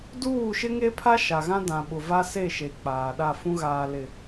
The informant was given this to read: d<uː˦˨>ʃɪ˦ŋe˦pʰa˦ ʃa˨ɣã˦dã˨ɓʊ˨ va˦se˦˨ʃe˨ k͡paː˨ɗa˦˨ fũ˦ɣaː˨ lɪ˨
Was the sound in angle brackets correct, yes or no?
yes